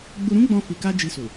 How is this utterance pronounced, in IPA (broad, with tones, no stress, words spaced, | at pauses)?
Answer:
ɡ͡bu˧ɾũ˦ɡ͡bɔ̃˧ fi˨ka˧ d͡ʒi˧su˨